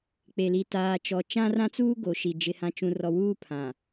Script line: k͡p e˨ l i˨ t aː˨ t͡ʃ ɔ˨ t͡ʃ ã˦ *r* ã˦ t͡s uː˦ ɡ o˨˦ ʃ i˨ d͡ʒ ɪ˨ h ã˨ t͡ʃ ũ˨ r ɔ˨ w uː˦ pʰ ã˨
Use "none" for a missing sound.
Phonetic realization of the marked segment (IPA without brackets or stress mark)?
r